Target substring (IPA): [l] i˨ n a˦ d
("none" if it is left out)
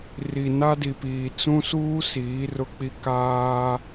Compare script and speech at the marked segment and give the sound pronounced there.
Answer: r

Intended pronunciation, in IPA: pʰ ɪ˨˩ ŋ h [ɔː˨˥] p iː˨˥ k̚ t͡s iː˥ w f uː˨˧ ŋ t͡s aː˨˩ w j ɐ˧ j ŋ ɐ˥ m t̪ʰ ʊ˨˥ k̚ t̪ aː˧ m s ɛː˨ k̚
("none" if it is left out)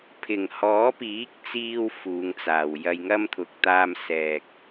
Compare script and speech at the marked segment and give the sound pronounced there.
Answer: ɔː˨˥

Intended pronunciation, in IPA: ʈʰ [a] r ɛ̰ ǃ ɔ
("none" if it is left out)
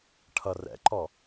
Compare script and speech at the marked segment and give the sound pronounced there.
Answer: ʌ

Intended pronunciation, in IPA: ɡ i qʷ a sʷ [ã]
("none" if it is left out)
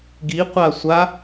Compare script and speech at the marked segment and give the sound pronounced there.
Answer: a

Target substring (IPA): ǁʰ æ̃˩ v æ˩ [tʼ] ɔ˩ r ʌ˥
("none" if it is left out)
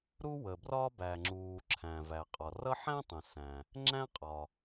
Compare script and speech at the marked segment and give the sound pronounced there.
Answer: qʼ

